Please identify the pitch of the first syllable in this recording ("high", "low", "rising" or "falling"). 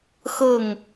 falling